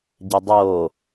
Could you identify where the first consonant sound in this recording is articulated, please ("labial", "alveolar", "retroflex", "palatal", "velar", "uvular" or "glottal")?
palatal